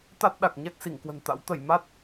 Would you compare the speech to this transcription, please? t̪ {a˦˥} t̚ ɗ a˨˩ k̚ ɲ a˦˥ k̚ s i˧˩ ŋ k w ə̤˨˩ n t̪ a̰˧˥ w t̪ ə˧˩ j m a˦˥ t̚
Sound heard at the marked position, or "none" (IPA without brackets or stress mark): a˦˥